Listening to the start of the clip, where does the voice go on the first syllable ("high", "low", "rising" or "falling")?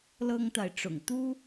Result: high